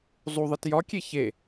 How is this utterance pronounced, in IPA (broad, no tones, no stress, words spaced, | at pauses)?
zˤuðˤit jɒkʲe çe